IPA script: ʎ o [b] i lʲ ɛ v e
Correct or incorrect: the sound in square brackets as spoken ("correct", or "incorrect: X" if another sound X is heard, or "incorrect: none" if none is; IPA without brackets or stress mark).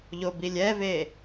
correct